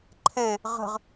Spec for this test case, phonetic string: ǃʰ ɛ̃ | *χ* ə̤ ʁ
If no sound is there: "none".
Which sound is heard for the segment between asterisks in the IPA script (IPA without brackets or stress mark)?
ʁ